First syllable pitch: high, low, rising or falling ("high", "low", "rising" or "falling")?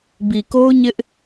low